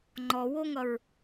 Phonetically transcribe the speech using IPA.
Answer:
ŋ͡ǃ ɔ w o ŋ ʌ ɹ

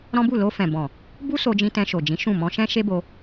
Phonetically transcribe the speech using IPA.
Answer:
ɾ ɔ̃˦ b u˦˨ l o˧ f ɛ̃˨ b ɔ̃˨ | b u˦ s o˧ d͡ʒ ĩ˧ t ɛ̃˧ ʃ o˨ d͡ʒ ĩ˨˦ ʃ ũ˦˨ m ɔ̃˧ ʃ ɛ̃˦ ʃ e˦ b o˧

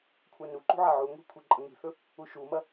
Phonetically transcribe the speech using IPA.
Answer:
kʷʰ ɐ n u ǃ ṳ ʕ a ʕ u ŋʷ i̤ kʷʰ i ǃʼ ɐ ŋ i̤ θ ɵ | u ʃ u m ɐ

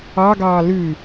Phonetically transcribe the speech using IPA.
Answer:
ɑ ɡ ɑː l ʉ

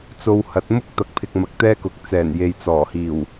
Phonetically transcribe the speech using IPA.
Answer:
t͡s o˧ w h ɐ˨˥ t̚ m ʊ˥ k̚ t̪ ɐ˨ k̚ pʰ ɪ˨ k̚ m ɐ˨ k̚ t̪ ɛː˥ k ʊ˨ k̚ t͡s ɛː˨˩ n j e˨ j t͡s ɔː˨˩ h iː˨˩ w

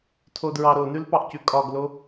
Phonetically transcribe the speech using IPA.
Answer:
tʰ o d ɹ ɑ ɾ o n ʉ l p ɑ ʔ c ʉ kʼ ɒ ɡ l o

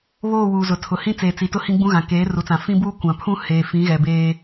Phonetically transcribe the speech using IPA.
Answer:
β oː˦˨ w uː˨ z ʊ˨ tʰ ʊ˨ h ĩ˦ t͡s eː˨ t͡s i˨ t ʊ˦ h ĩ˦ ɡ͡b ũ˦ ɣ ã˨ k eː˨˦ r u˨ t͡s ã˨ f ĩ˦ b uː˦ kʷ ã˨ pʰ ũ˦ h eː˨ f ĩ˨˦ ɣ ɛ˨ b eː˦

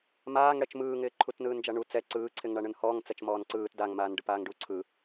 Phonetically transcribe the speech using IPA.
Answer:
m aː ŋ ɽ ɛ t͡ʃ m ɯː ŋ ɪː ǃʰ u t n ɯː n d͡ʒ a ɳ u t͡s ɛ ǀ ɯː ǀʰ ɪ ŋ ɳ a ɳ ɯ n h ɔː ŋ t͡s ɛ t͡ʃ m ɔː n ǀ ɯː t d a ŋ m aː n ɖ ɯ p aː ŋ ɖ u ǀʰ ɯ

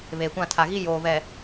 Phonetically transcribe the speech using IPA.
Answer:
β eː˨ kʷ ã˦˨ tʰ a˨ ɣ i˦ j oː˨ β ɛ˨

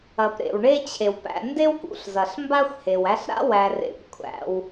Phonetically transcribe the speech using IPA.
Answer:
ɐ˩ p ɾ ḛ˩ w ɳ e˦ t͡ɕʰ e˩ w p æ̰˨ n d e˥ w k ṵ˨ ɬ z ɐ˩ ɬ m b a˦ xʷ h e˩ w æ˦ ɬ ɾ a̰˥ w æ˨ r ḛ˨ p kʷʰ æ̰˨ w

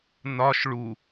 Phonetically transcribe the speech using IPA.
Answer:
n ɒ ʃ ɭ u

